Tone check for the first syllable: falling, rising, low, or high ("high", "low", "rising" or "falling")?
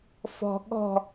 high